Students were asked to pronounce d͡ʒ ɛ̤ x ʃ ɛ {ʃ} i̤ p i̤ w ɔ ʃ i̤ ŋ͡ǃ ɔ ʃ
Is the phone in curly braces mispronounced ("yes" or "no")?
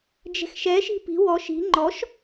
no